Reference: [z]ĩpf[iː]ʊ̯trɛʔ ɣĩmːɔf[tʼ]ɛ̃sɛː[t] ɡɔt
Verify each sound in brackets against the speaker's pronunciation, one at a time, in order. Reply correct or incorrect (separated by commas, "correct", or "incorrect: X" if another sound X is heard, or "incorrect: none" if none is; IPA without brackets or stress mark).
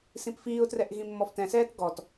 incorrect: s, correct, incorrect: t, correct